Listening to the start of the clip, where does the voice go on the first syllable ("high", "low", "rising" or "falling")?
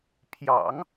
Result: low